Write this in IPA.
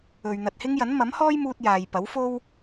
ɵ˨ ɥ n̪ ɐ˨ t̚ h ɪ˥ ŋ j ɐ˨˥ n m ɐ˨˥ m h ɔː˥ j m uː˥ t̚ j aː˨ j p ɐ˨˥ w f o˥ w

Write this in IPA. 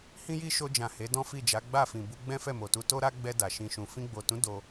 h ĩ˦ j i˦ ʃ o˧ d͡ʒ ã˨ h e˨˦ d ɔ̃˦ f i˦˨ d͡ʒ a˨˦ ɡ͡b a˦˨ f ĩ˨ b u˧ ɡ͡b ɛ̃˦ f ɛ˦˨ m o˨ t u˧ t o˦ ɾ a˦ ɡ͡b ɛ˧ d a˨ ʃ ĩ˧ ʃ ũ˨ f ĩ˧ ɡ͡b o˨ t ũ˨˦ d o˧

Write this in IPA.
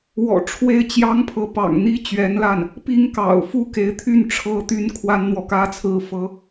w ɔ̰˨˩ ʈ͡ʂʰ w e˥˩ ɪ̯ t͡ɕ j ɑ˥ ŋ pʰ ɤ˧˥ p ɑ̰˨˩ ŋ n̪ i˥ t͡ɕ ɥ ɛ˧˥ n l a˥˩ n | p i˥ ŋ k ɑ̰˨˩ ʊ̯ f u˥ k e˧˥ ɪ̯ t̪ʰ y˥˩ n ʈ͡ʂʰ ɤ˥ t̪ y˥ n kʰ w a˥ n n̪ w ɔ˨ k ä˥ t͡sʰ ɹ̩˥ f ɤ˥

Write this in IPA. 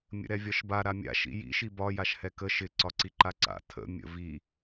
mʲ ə̰ ɾ ɛ vʲ ɒ ʃ b a ɾ a mʲ a̰ ʃ ḭ j ḭ ʃ i b ɒ j a ʃ h ɛ k ə ʃ ɪ ǀ ɒ ǀ i ǃ a ǀ a̰ tʰ ə̰ mʲ ə̰ v i

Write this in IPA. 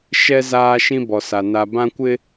ʃ ɛ˦ z aː˦ ʃ ĩ˦ b ɔ˨ s a˨ n a˨ b ã˦ kʷ ɪ˦

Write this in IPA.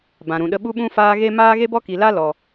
b ã˨ ɾ ũ˨ ɗ ə˧ ɓ u˦ ɓ ũ˦ f aː˦ ɣ e˦ m aː˦ ɣ e˦ b ɔ˦ k i˨ l a˦ l ɔ˨

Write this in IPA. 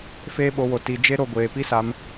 f eː˦ ɓ o˧ w o˨ t i˨ d͡ʒ e˦ ɾ o˧ ɡʷ eː˨ p i˦ s a˧ m

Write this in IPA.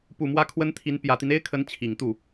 p u˨˩ m w ä˧˥ kʰ w ə˥ n t̪ʰ i˧˥ n p j ä˨˩ t̪ i˦ n e˥ ɪ̯ kʰ ə˧˥ n t͡ɕʰ i˨˩ ŋ t̪ u˥˩

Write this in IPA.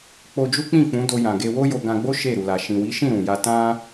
k͡p o˧ d͡ʒ u˦ k͡p ĩ˦˨ k͡p ũ˨˦ d o˧ j ã˨ ɡ e˧ w o˦ j o˧ ɡ ã˧ ɡ͡b o˦ ʃ e˦˨ ɾ u˨ l a˨ ʃ ĩ˨ w i˨˦ ʃ ĩ˦˨ ɾ ũ˨ j a˧ t ã˦

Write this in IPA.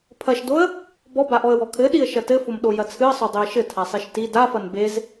pʰ ɐ ʃ d o ə̯ | b ɔ b a ʔ ɔ ə̯ w ɔ kʰ ɘ ɗ i ə̯ ʃ ɐ t ɘ f o m ɗ o j ɐ t͡sʰ ɨ ə̯ sˤ o dˤ i ə̯ ʃ ɘ tʰ a sˤ e ʃ t i d a f ɐ n b e z

